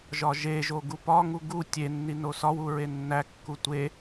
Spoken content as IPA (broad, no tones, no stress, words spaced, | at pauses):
ʒɒʒeʒo ɡupɒŋu ɡu tʲenːi nosɒwu ɹenːækːu tʷe